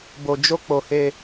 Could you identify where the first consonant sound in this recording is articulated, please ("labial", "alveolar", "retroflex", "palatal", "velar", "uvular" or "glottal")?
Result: labial